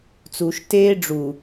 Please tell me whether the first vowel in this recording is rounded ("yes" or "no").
yes